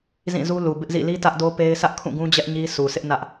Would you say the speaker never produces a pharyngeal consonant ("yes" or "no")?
yes